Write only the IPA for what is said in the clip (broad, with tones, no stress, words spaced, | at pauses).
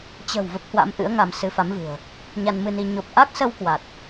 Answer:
t͡ɕə̤˨˩w və˦˥p̚hwa̰˧˥m ʔɨ̰˧˥ə̯ŋa˧m sɨ˨˦fa˨˦mvɨ̤˨˩ə̯ | ɲa˧nmɨ˧ni˧ ɲo˨˩p̚ʔa˦˥k̚sə˧w kwa˨˩t̚